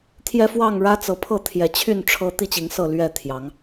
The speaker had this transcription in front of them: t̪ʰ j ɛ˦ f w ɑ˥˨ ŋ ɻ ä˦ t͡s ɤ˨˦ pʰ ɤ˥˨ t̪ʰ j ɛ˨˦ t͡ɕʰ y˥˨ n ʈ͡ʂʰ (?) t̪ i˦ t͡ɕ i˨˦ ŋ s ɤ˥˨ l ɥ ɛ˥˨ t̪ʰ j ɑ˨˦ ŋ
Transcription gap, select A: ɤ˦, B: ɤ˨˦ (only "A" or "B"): A